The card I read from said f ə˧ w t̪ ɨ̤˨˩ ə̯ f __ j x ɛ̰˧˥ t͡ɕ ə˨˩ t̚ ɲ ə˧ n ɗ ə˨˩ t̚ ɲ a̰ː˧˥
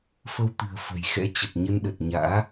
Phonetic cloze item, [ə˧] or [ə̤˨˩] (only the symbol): ə̤˨˩